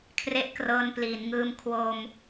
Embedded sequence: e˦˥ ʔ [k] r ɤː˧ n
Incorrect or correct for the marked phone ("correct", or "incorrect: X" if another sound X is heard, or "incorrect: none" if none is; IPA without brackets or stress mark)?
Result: correct